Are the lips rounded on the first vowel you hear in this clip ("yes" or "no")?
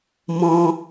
yes